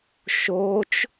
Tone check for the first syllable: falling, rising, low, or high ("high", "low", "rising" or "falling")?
rising